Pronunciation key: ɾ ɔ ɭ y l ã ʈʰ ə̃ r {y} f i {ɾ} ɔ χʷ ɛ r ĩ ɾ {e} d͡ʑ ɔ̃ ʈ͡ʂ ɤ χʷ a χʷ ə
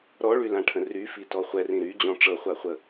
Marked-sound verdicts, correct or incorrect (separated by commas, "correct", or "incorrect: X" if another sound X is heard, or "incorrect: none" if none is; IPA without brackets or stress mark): correct, incorrect: t, incorrect: y